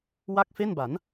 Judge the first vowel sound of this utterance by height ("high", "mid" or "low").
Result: low